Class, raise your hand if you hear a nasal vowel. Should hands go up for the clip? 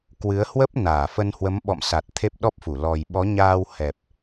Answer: no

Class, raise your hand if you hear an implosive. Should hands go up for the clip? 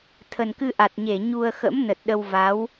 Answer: yes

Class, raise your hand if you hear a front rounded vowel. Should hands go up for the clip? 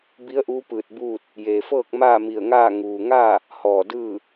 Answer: no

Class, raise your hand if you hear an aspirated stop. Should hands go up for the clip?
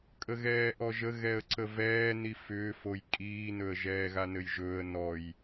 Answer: no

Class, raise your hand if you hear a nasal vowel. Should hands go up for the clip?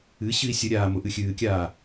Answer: no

